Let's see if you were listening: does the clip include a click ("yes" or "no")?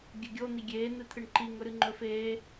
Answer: yes